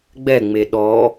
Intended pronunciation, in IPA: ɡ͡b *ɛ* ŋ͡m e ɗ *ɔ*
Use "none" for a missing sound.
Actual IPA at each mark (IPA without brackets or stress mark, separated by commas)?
ɛ, ɔ